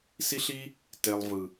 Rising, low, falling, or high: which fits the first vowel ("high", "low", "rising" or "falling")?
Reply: high